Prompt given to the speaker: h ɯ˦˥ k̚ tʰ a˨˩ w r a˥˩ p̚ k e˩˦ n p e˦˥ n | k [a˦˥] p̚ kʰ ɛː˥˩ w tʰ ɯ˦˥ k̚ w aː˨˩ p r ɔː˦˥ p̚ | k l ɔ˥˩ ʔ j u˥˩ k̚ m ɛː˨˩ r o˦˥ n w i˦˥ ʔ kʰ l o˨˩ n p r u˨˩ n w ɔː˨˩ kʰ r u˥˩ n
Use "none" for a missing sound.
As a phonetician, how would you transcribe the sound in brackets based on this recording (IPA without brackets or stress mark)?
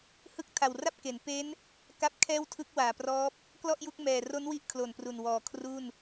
a˦˥